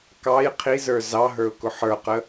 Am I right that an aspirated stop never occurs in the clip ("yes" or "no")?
no